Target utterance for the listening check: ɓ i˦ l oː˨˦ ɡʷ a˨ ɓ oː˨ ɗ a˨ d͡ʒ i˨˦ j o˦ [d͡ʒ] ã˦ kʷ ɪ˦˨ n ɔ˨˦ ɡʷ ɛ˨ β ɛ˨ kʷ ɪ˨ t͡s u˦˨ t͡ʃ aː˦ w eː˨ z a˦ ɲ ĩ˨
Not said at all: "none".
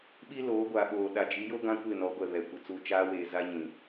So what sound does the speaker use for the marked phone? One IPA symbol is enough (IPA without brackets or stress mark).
ɡ